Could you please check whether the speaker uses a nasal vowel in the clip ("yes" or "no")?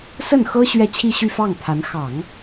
no